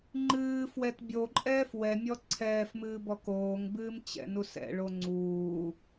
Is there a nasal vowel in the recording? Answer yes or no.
no